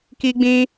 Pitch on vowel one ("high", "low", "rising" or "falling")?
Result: high